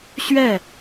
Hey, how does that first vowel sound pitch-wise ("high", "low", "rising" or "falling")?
falling